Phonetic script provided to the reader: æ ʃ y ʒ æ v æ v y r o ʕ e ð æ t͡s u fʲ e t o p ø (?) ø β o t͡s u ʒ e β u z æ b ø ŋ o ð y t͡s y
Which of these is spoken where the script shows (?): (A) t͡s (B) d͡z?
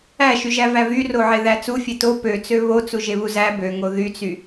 A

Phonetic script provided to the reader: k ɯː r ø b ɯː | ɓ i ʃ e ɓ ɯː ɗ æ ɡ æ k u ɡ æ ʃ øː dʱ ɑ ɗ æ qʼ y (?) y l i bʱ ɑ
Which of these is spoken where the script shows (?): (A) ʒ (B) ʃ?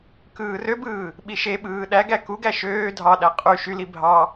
B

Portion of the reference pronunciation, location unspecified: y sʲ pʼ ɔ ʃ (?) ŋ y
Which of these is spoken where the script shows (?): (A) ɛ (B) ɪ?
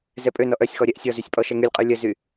A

